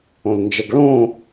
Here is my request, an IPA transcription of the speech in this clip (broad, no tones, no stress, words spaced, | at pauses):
õlnd͡ʒəɡ ɭõ